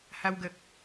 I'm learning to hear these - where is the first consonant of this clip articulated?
throat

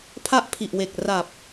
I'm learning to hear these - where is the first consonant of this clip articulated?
lips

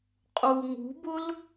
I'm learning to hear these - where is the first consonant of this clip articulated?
uvula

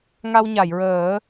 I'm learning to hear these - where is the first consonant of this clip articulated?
velum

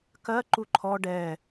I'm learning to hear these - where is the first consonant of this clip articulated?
velum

